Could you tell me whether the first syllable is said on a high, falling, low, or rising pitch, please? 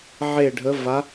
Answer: falling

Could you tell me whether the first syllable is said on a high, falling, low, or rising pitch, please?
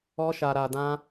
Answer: high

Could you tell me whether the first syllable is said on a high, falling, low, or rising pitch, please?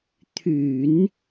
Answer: low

